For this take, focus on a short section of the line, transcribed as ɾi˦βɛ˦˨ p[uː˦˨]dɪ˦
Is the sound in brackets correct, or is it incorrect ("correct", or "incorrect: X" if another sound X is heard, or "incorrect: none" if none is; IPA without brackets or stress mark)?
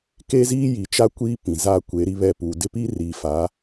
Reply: incorrect: uː˨